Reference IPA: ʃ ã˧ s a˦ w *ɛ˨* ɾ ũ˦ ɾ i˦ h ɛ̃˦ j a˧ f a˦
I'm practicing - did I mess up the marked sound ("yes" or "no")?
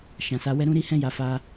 yes